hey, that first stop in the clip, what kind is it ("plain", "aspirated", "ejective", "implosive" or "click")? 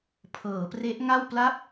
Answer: aspirated